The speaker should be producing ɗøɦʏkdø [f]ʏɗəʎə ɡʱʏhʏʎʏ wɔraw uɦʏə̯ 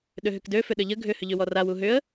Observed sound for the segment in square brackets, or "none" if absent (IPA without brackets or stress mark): f